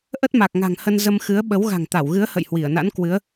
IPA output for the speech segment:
ʔ ə˦˥ t̚ m a˨˩ k̚ ŋ a̤˨˩ ŋ h ə˧ n z ə˧ m x ɨ˨˦ ə̯ ɓ ə˨˦ w ɣ a̤˨˩ ŋ t̪ a˧˩ w ɣ ɨ˨˦ ə̯ h ə̰˧˨ j h w i˧˩ ə̯ n a̰˧˥ n k w ɨ˨˦ ə̯

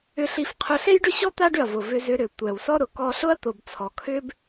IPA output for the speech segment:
ʏ˧ ɬ i˧ f qʰ ʊ˧ ɬ e˥ j ɖ ʏ˥ ɕ ɔ˥ t̪ a˥ ɖ ʏ˩ ɐ̯ v ʊ˩ v ʏ˧ z ʏ˧ ɾ ʏ˩ tʷ ɛ˩ w s ɔ˥ ɾ ʊ˩ k ɔ˧ ɬ ʊ˥ ɐ̯ t̪ ʊ˩ b t͡sʰ ɔ˩ kʰ ʏ˥ b

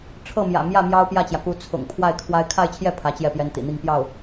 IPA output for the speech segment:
ʈ͡ʂʰ ɤ˥˩ m j ä̰˨˩ m j ä˥˩ m j ɑ˥ ʊ̯ p j ä˥˩ t͡ɕ j ä˩ k u˧˥ t͡sʰ ʊ̰˨˩ ŋ pʰ w a˥˩ ɪ̯ kʰ w a˥ ɪ̯ kʰ a˥˧ ɪ̯ t͡ɕʰ j ɛ˥˩ pʰ ä˧˥ t͡ɕ j ɛ˥˩ p j ɛ˥ n t̪ ḭ˨˩ n̪ i˥˧ ŋ p j ɑ˥˩ ʊ̯

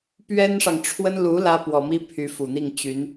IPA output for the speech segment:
p ɥ ɛ˥ n ʂ ɑ˨ ŋ ʈ͡ʂʰ w ə˥ n l u˧˥ l ä˥ p w ɔ˨˩ m i˥ pʰ y˧˥ f u˨˩ n̪ i˥˩ ŋ t͡ɕ y˧˥ n

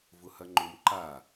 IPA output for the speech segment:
v ʊ h ɐ ŋ͡ǃ ʊ m ǃ a

